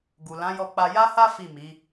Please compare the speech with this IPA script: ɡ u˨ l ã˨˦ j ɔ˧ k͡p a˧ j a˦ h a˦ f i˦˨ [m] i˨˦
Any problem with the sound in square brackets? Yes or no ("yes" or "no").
no